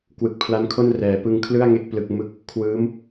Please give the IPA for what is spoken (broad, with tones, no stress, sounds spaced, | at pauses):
k w ɯ˨˩ k̚ pʰ l a˦˥ n kʰ o˥˩ n r ɛː˩˦ p ɯ˧ ŋ kʰ l ɯ˥˩ a̯ ŋ e˥˩ k̚ p l ɯ˥˩ k̚ m ɯ˥˩ k̚ | kʰ w ɯː˦˥ m